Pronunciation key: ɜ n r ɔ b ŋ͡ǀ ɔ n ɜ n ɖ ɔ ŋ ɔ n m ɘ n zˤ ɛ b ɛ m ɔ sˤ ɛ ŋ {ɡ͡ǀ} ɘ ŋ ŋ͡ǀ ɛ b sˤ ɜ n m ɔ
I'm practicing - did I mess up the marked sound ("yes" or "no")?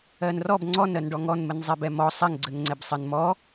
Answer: no